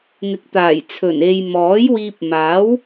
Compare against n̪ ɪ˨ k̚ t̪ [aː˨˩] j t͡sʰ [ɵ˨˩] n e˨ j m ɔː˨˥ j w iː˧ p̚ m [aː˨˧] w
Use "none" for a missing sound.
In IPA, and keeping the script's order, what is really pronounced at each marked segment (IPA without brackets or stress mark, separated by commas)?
aː˨˩, ɵ˨˩, aː˨˥